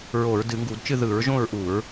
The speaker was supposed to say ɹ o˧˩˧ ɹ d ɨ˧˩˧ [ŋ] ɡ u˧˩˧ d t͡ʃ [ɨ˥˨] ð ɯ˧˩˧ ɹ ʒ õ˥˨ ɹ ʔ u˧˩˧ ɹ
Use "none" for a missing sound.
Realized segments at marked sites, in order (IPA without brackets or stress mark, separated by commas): ŋ, ɨ˥˨